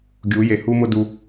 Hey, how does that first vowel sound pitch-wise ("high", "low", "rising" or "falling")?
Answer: rising